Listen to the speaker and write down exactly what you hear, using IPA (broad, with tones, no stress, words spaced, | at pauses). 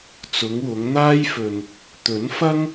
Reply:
t͡sʊ˨˧ŋwʊ˨˧ŋn̪aː˥jfɵ˧n | t̪ɵ˨˥nfɐ˥ŋ